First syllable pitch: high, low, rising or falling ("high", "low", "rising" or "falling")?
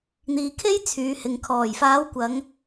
low